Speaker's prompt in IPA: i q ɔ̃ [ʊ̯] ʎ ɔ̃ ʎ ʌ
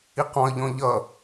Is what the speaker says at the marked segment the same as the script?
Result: no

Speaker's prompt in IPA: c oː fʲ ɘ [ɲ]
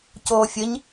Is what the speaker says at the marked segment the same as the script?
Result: yes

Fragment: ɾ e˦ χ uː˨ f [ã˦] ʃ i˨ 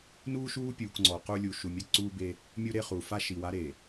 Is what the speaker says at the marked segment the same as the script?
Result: no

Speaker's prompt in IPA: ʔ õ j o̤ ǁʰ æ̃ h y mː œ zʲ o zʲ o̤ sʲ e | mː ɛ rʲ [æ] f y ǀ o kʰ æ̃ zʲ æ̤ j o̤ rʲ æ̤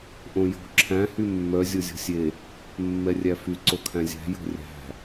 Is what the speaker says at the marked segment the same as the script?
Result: yes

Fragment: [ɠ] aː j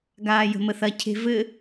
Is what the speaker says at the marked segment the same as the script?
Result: no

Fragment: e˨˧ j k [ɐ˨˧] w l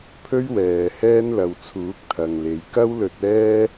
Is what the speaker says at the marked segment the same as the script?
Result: no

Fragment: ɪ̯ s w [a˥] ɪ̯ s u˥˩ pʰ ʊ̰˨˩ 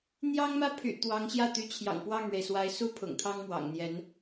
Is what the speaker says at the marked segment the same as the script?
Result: no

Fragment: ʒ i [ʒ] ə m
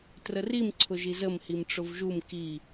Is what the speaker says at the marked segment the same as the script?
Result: no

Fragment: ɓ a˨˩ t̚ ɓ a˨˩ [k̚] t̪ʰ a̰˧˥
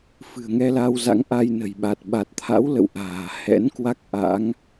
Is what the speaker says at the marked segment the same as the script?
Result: no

